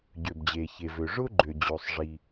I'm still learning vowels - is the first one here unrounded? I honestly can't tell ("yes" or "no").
no